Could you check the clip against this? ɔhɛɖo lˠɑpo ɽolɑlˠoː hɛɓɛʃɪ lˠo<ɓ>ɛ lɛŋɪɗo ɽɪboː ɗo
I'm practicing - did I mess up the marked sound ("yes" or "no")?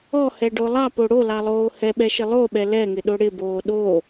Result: no